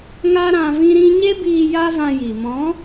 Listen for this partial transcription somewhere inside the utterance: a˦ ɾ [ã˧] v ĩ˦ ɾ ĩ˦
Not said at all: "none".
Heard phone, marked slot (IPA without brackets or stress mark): ã˧